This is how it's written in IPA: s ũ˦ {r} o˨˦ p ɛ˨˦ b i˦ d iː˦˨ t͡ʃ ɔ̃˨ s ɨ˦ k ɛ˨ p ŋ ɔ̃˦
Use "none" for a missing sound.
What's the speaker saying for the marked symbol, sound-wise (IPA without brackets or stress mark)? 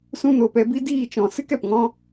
n